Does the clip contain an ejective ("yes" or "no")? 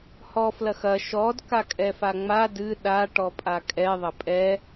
yes